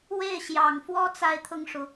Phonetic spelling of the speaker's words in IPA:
w e˥˩ ɪ̯ ɕ j ɑ˨˩ ŋ f w ɔ˥ t͡s a˥˧ ɪ̯ t̪ʰ ʊ˥˩ ŋ ʂ u˩

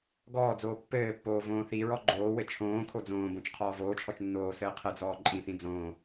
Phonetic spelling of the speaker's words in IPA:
ɡ ɔː d͡z oː pː ɘː pː oː v õː θ i ɹ ɔ ɡ͡ǃ oː w ɘ t͡ʃʰ õː kʰ o d͡z õː b õ t͡ʃ qʰ ɔː v oː t͡ʃʰ ɔ t͡ʃ nː oː s ɘː qʰ ɘ d͡z ɔː ǃʼ ĩ θ ĩ d͡z õː

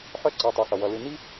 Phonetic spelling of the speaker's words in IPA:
ħ œ˥ ǀ ʌ˩˧˩ tˤ œ˩˧˩ x ʌ˩ w ʌ˩˧˩ l ɨ˦˨ n i˥

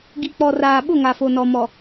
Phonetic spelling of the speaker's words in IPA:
ɡ i˨ k͡p ɔ˨ r aː˨ ɓ ʊ˦˨ ŋ a˨ f o˨ n ɔ˨ m ɔ˨

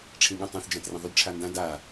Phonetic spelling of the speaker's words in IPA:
ʈ͡ʂʰ ĩ ɠ ɐ̃ tˤ ã θ d͡ʒ ã t r ẽ ðˤ ʉ d ʈ͡ʂʰ a n d ã d a

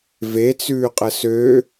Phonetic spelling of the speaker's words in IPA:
v e t͡s ʉː qʼ ə s ø

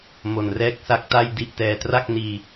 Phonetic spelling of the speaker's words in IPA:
m o˨˩ n r ɛː˦˥ k̚ s a˦˥ k̚ t a˥˩ j d i˦˥ ʔ t ɛː˧ t r a˥˩ k̚ n iː˧

